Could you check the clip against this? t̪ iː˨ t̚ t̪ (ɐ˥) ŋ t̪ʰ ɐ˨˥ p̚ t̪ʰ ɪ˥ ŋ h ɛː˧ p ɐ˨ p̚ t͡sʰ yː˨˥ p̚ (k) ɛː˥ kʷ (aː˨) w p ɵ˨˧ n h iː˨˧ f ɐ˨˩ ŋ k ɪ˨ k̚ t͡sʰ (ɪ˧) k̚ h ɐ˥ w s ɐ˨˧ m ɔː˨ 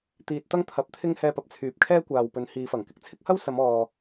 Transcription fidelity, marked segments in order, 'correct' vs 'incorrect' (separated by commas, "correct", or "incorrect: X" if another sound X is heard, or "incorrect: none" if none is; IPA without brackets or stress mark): correct, incorrect: kʰ, correct, incorrect: ɪ˥